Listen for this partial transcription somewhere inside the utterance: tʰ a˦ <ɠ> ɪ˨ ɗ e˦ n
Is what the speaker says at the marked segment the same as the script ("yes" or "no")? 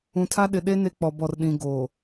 no